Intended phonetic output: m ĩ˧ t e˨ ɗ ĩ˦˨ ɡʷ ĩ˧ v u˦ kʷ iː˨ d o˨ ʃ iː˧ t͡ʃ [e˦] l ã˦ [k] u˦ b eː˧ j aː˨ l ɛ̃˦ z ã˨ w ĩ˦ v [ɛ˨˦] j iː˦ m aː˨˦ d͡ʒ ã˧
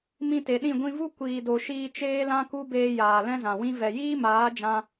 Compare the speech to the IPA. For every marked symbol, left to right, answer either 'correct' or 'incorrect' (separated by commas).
incorrect, correct, incorrect